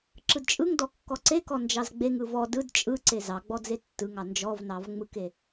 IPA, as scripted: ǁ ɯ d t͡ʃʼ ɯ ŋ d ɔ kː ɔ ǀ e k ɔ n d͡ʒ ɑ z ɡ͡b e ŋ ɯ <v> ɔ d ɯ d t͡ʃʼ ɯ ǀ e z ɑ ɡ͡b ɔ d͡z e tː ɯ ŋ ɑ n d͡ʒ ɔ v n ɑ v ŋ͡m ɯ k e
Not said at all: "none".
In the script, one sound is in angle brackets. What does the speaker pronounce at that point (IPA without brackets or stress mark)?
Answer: v